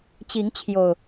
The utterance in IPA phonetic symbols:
t͡ɕi˨˦ŋt͡ɕʰjo˨˩ʊ̯

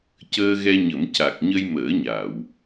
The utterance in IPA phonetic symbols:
cəː˧ɣɛ˧ɲə˨˩˦mca˨˩k̚ ɲə˧jməː˨˩˦ɲa˨˩˨w

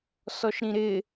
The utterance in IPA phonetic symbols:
sɔʃɾĩɾɪ

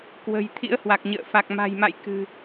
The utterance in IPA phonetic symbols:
kwə̤˨˩j t̪ʰḭ˧˥ə̯hwa˨˩k̚ɲə̰ː˧˨ fa˨˩k̚ ma̤˨˩jma̰˧˨j kɨ̤˨˩

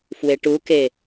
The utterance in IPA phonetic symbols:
fweʈuke

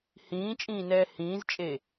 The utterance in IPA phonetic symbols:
hĩːt͡ʃʼĩːnɛː hĩːzt͡ʃʼe

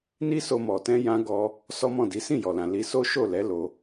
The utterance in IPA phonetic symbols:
ni˦so˧mɔ˨ tɛ̃˧jã˧ ɡɔ˧ | sɔ˦mɔ̃˦˨di˨˦ sĩ˦˨jɔ˨lã˨ li˧so˦ ʃo˦˨lɛ˨˦ lo˧

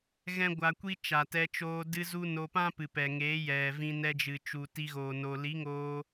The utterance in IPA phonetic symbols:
ɣɛ̃˦ɡʷa˧kʷi˦ t͡ʃa˨tɛ˧t͡ʃoː˧ dɨ˧zu˧ no˧pã˦pɨ˨ pɛ˨ ŋeː˨˦ jɛ˨vĩ˧ nɛ˧d͡ʒɨ˨t͡ʃu˨ ti˧ɣoː˨ no˨ li˨˦ŋoː˧

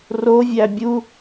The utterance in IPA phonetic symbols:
rovʲæ bʲu

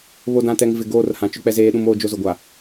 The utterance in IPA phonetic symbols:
βo˨dã˨tɛ˨ŋ vɪ˨ɡoː˦˨r hã˨ t͡ʃʊ˦k͡pɛ˦zeː˦ɗũ˦m oː˦d͡ʒo˦zʊ˨ɡʷa˨

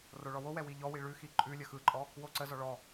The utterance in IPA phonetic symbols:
roɭɔwowɛ wiʎɔwi ɭʉxi ǃʼʉlʲə xɯǃʼɔ | woǀəzɔ ɭɔ

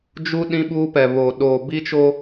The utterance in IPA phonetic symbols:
d͡ʒu˦ ɗĩ˦ɓuː˦pɛ˨βoː˨ ɗoː˨bi˦t͡ʃo˦

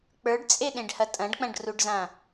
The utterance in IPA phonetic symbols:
k͡pə˞ɖt͡sʼeɗẽɖhɐ tʼɐ̃ɖk͡pɐ̃ɖruɖzã

